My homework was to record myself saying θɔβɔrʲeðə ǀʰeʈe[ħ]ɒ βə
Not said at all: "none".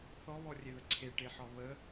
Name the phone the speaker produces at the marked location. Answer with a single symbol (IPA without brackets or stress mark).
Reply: ħ